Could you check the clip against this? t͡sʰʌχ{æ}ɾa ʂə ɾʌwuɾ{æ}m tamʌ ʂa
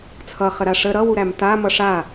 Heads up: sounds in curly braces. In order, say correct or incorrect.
incorrect, correct

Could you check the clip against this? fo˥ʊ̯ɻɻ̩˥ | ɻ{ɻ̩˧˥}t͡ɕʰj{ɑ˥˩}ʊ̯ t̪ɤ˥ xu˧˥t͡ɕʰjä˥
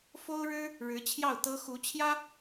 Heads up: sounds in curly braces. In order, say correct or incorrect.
correct, correct

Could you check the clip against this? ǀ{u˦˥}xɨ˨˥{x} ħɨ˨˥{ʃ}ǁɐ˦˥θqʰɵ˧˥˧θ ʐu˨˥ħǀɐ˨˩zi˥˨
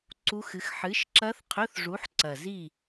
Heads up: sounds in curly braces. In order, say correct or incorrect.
correct, correct, correct

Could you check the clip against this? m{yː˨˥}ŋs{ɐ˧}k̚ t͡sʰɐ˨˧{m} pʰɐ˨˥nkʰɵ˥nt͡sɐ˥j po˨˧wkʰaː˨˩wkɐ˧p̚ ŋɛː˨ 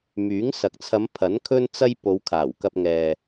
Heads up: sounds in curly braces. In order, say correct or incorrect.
correct, incorrect, correct

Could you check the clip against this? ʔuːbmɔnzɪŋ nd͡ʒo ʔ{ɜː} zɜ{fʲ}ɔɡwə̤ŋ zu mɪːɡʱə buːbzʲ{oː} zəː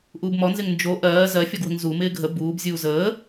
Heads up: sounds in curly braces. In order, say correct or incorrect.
correct, correct, incorrect

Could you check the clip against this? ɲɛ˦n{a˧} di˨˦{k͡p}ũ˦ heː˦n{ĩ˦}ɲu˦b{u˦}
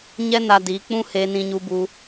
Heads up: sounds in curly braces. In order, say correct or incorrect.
correct, correct, correct, correct

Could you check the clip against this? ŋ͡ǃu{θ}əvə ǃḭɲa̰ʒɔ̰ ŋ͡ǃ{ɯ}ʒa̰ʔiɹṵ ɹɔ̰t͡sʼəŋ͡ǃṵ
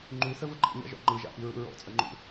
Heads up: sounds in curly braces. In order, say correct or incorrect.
correct, correct

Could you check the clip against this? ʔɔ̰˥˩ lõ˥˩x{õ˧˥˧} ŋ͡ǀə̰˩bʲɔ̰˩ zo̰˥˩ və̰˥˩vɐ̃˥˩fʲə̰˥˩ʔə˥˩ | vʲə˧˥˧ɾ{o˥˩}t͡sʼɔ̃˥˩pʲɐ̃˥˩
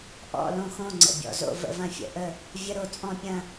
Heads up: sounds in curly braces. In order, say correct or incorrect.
incorrect, correct

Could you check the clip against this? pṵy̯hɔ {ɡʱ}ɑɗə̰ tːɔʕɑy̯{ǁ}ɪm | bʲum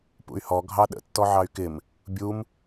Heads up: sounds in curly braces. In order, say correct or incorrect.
correct, incorrect

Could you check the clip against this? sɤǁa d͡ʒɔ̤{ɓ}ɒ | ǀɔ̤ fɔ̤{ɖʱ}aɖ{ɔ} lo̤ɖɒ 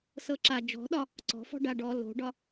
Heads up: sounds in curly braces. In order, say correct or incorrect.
incorrect, incorrect, correct

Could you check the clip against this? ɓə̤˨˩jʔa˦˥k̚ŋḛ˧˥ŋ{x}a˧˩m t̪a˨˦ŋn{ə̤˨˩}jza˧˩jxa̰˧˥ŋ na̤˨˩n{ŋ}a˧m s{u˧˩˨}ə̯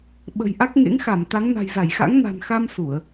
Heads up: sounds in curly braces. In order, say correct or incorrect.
correct, incorrect, incorrect, correct

